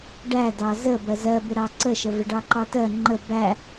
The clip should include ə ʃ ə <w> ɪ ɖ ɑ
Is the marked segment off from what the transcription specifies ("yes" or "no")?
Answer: yes